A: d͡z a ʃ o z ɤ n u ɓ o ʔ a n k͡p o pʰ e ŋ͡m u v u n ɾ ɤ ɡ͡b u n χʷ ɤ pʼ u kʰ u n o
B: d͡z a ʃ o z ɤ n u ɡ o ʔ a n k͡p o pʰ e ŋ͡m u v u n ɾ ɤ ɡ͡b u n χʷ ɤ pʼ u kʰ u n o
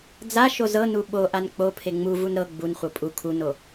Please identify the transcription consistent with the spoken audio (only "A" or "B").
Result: A